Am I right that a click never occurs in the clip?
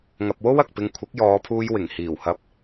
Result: yes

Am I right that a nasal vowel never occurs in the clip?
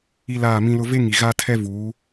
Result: no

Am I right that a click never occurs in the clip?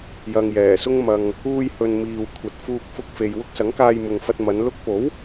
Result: yes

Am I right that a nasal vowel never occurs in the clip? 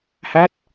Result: yes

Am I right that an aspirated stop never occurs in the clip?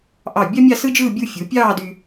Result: yes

